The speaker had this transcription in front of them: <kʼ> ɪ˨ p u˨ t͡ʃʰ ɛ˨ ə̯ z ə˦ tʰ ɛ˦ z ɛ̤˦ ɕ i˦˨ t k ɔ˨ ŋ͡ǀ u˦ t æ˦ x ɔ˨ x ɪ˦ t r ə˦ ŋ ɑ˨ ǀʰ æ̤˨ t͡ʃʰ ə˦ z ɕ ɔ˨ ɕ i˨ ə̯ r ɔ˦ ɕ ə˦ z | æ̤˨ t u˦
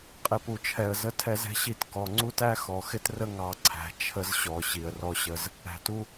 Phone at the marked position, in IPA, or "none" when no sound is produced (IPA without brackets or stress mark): qʼ